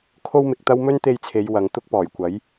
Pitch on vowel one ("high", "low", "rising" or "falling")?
high